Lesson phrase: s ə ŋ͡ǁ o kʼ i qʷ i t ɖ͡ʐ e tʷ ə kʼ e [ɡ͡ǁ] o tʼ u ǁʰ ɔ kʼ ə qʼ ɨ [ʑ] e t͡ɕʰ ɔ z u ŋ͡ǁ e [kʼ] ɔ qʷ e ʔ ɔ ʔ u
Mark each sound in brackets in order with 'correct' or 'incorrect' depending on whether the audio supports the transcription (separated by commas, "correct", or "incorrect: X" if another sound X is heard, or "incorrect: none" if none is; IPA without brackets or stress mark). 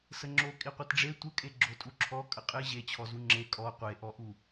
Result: correct, correct, correct